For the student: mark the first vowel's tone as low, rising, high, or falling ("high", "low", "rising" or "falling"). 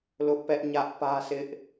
high